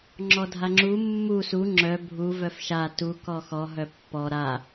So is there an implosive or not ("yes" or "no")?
no